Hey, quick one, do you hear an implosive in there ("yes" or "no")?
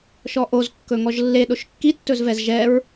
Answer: yes